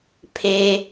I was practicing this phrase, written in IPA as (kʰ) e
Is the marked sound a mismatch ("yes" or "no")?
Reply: yes